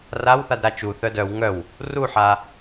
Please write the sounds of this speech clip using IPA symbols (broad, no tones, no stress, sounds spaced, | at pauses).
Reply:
r a w θ a d ɾ a t͡ʃ u θ œ d œ w ŋ œ w | r u ħ a